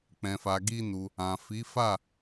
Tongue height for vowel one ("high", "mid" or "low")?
mid